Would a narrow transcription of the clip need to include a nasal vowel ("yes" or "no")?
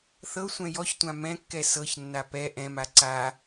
yes